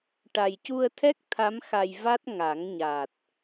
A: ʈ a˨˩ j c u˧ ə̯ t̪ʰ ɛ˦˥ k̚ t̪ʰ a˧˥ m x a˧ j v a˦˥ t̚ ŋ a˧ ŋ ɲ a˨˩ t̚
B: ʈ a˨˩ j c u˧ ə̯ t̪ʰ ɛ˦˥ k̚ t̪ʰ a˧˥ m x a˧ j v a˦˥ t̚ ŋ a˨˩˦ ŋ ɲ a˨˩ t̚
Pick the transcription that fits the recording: B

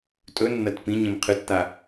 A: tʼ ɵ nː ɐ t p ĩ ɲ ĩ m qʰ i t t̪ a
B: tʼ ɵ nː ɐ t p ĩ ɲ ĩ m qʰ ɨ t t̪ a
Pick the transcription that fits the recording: B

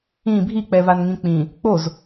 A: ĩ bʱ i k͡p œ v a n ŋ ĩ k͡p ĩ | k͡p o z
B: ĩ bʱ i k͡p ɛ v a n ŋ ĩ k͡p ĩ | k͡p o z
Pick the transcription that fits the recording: B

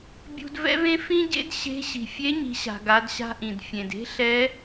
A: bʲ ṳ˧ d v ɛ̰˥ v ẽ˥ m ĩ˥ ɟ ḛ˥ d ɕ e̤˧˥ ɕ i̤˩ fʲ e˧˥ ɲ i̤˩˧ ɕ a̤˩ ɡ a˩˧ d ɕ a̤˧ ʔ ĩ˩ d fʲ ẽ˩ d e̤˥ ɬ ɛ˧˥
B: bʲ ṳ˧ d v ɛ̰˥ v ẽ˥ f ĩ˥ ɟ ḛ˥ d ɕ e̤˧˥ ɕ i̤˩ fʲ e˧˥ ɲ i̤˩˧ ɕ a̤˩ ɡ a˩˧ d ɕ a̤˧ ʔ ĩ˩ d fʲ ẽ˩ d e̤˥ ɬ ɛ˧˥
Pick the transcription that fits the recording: B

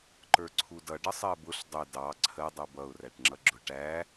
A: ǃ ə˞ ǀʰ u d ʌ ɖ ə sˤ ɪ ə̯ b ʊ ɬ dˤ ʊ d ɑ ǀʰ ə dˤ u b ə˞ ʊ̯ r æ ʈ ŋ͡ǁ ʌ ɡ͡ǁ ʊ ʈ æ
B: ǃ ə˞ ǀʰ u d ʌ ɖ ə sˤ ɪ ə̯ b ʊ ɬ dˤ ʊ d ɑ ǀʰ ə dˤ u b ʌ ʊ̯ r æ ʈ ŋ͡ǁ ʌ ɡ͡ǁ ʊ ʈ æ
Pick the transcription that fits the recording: B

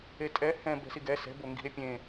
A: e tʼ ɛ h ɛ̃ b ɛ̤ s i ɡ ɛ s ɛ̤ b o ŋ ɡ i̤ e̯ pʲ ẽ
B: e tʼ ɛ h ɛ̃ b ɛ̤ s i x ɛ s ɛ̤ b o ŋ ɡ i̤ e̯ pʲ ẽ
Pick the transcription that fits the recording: A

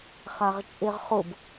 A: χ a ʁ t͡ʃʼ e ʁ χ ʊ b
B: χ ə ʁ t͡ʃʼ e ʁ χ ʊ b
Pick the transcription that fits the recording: A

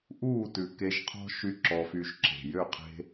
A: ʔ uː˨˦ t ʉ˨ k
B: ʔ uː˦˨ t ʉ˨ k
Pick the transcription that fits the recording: B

